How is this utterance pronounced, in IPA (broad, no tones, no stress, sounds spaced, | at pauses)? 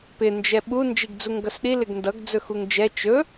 p ɪ n d͡ʒ ɛ ɓ u n d͡ʒ i ɡ d͡z u ŋ ɡ ʌ s ɗ i l ɪ ɡ n d ʌ ɡ d͡z ɵ x u ŋ d͡ʒ ɛ t͡ʃ ɵ